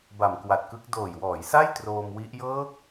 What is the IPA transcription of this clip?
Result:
b a˨˩ m k w a˨˩ t̚ k ɯ˦˥ k̚ d oː˨˩ j w ɔː˩˦ j s a˥˩ j t r oː˧ m w i˦˥ ʔ j ɤː˦˥ k̚

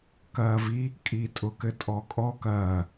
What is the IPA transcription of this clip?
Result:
k ɐː v i | kʼ i tʼ ʊ k ɘ tʼ ɔ kʼ ɔ k ɐː

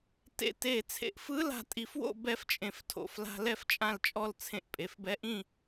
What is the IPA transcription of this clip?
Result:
t ḛ˧ t e˧˩ t͡sʰ ḛ˧ ʔ f ɯ˧˥ l a̤˧ tʼ i˧ f w o̰˥˧ b ɛ˧˥ f t͡ʃʼ ẽ˧ f tʰ o̰˧˩ f l a̤˧ l ɛ˥˧ f t͡ʃʼ ã˥˧ l t͡ʃʼ ɔ˥˧ l t͡sʰ ẽ˧ ʔ pʼ e˩˧˩ f b ɛ˧˥ ʔ ĩ˥˧

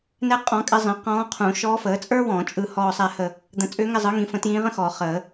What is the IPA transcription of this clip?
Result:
n ɛ˥ qʼ ɔ̃˧˥ kʼ ɪ˧˥ zˤ ĩ˩˥ q ɔ̃ː˧˥ qʰ ũ˨˩˦ ʃ ɔː˧˥ f əː˩˥ t͡sʼ ə˞˥ w ɔ̃˨˩˦ t͡ʃʼ ɯ˦˨ h ɔː˦˨ sˤ ɛ˦˨ h ə˦˨ | d̪ ə̃˨˩˦ t͡sʼ ʏː˧˥ ŋ ɪ˦˨ zˤ ɯ˩˥ ŋ ĩ˩˥ f ə̃˩˥ t j ĩː˧˥ ʁ ə̃˥ x ɔː˨˩˦ χ əː˨˩˦

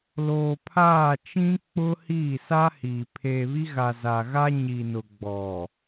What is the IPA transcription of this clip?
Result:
l oː˨ pʰ aː˦˨ t͡ʃ ĩ˦ k͡p ʊ˦ h iː˦˨ s a˦ h iː˨ pʰ eː˨ β i˦ ɣ a˨ z a˨ ɣ a˦ ɲ i˨ n ʊ˨ ɡ͡b ɔ˨

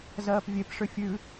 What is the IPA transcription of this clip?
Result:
z ɜː p vʲ e p ʂ ʏ fʲ ʉ

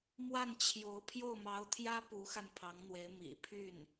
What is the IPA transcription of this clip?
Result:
m w a˥˩ n t͡ɕʰ j o˧˥ ʊ̯ pʰ j o˥˩ ʊ̯ m ɑ˧˥ ʊ̯ t̪ʰ j ä˥ p u˧˥ x a˧ n pʰ ɑ˧˥ ŋ n̪ w e˧˥ ɪ̯ m ḭ˨˩ pʰ y˥˩ n

